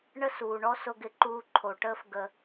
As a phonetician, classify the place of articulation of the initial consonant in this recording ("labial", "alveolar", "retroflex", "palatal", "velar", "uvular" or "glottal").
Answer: retroflex